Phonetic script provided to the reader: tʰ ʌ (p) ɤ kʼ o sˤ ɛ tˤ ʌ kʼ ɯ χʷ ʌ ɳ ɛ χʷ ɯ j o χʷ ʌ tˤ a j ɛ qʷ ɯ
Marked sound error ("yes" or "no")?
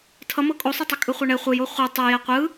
yes